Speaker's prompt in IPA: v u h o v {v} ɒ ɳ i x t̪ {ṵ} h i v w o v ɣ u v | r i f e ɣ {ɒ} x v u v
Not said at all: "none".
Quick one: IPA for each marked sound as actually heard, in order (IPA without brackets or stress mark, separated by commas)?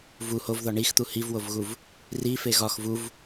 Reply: ð, u, ɒ